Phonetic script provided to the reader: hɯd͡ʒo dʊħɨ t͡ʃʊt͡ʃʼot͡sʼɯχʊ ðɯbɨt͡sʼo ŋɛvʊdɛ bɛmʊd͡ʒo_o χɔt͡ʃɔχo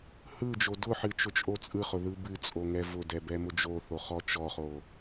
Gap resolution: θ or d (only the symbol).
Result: θ